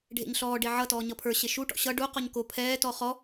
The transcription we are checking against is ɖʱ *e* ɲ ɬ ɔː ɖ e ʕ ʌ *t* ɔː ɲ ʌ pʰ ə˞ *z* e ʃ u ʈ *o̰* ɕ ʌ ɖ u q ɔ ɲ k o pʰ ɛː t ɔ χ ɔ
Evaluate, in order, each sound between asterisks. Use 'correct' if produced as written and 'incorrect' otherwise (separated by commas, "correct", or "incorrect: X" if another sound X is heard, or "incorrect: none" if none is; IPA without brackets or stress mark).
incorrect: ḛ, correct, incorrect: ɕ, incorrect: ɔ̰